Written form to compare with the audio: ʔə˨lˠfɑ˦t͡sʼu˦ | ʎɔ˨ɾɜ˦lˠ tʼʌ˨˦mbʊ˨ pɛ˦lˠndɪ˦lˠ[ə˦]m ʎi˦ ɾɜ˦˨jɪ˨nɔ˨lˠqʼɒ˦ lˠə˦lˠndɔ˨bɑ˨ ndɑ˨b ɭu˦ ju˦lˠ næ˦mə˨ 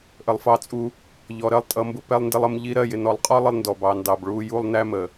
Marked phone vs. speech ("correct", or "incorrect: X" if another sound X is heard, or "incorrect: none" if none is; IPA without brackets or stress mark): correct